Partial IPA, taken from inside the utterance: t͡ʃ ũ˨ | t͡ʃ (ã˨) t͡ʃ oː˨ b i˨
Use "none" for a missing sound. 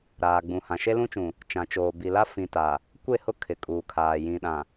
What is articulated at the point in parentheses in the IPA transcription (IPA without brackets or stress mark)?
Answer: ã˨